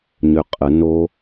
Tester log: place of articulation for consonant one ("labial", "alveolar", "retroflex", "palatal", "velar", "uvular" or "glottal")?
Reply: palatal